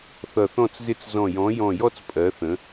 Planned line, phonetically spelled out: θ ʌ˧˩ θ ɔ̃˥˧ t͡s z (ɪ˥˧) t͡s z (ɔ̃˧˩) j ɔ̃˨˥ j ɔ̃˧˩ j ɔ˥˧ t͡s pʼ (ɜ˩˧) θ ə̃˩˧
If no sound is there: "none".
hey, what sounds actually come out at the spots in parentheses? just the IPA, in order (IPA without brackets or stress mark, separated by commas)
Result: ɪ˥˧, ɔ̃˧˩, ɜ˩˧